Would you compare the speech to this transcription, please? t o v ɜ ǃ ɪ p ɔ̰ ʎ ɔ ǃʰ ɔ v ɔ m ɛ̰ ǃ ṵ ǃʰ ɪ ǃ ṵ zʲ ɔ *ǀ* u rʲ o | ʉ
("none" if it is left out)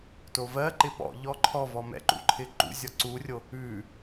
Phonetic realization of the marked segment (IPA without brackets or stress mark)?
ǀ